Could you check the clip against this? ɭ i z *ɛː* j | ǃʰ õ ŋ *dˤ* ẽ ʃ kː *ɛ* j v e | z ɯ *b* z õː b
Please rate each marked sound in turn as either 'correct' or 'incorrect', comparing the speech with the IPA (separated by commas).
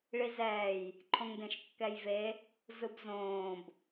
correct, incorrect, correct, correct